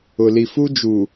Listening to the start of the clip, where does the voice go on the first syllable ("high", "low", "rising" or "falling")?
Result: low